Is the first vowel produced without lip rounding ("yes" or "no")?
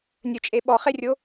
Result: no